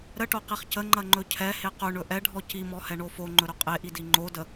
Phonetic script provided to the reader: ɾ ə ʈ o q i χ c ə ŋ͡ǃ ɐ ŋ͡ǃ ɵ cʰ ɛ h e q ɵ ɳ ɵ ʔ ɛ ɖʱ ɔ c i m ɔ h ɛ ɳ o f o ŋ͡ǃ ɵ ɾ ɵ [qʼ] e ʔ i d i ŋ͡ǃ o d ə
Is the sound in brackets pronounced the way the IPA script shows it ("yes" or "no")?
yes